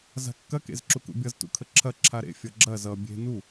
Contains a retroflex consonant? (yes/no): no